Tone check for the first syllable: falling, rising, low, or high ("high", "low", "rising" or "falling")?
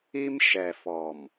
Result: high